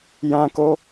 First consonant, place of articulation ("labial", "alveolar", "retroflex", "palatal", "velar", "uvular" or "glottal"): palatal